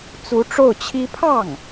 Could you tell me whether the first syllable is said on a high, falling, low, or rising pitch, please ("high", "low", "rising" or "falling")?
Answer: rising